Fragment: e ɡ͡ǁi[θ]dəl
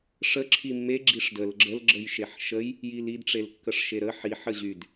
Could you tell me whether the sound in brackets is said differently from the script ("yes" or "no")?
yes